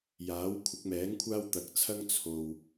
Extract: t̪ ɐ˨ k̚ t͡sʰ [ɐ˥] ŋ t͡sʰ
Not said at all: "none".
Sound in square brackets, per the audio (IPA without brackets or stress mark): ɐ˥